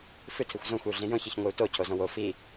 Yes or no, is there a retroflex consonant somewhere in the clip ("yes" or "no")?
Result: no